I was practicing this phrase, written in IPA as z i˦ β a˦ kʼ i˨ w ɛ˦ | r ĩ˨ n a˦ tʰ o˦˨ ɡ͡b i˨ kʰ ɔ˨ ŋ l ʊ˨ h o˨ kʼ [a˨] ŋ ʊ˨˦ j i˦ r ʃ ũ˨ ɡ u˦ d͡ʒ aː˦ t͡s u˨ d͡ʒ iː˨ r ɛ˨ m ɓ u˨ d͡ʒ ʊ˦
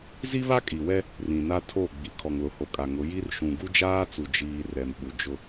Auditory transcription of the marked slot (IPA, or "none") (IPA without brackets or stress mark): a˨